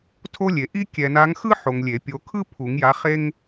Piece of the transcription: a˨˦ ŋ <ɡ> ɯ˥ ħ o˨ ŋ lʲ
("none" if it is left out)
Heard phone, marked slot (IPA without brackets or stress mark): x